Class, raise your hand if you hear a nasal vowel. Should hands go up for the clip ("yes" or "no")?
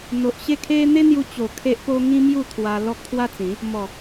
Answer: yes